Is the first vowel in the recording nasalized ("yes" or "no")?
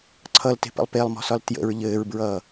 no